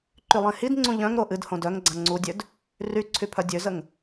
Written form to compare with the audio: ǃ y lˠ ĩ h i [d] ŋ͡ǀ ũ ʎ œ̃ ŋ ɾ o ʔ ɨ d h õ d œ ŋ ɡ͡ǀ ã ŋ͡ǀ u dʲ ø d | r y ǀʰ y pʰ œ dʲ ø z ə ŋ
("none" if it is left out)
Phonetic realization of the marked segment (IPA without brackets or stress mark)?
d